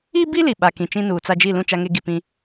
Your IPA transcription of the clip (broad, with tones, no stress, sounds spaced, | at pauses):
iː˦ b i˦ l i˨ ɓ a˨ k ĩ˨ t͡ʃ ĩ˦ n uː˨ t͡s a˦ d͡ʒ i˦˨ l ũ˦˨ t͡ʃ a˦ ŋ e˦ ɡ i˨ p ĩ˦